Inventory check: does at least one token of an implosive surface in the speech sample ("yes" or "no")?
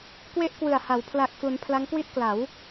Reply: no